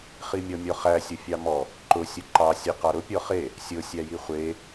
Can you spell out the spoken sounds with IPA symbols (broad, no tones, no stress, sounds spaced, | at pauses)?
χ i mʲ ɔ mʲ ɔ χ æ sʲ ʊ fʲ ɑ m ɔ | ǃ ʊ sʲ ʊ ǃ ɑ sʲ ɛ q ɑ ɾ ʊ pʲ ɔ χ e | sʲ ʊ sʲ æ j i χʷ e